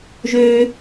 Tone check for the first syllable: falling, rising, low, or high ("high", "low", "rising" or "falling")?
low